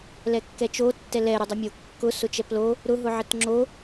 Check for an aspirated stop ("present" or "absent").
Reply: absent